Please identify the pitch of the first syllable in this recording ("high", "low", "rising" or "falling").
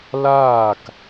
falling